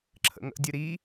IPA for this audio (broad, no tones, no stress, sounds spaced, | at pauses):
ǁʰ ə̰ ŋ ə̰ dʲ ɨ ɾ i